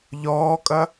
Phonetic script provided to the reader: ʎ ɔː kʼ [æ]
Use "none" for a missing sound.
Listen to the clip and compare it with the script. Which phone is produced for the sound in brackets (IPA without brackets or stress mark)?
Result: ɐ